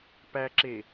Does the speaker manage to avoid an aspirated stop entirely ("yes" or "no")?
yes